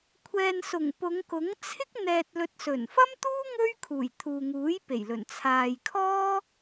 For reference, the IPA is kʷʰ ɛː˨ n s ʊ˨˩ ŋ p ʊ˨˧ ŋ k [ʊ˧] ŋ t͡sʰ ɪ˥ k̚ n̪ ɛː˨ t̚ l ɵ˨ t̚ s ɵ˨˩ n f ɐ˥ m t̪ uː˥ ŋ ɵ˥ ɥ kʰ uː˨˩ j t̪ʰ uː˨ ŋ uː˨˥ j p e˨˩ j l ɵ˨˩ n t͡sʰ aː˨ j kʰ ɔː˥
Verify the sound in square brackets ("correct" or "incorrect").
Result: incorrect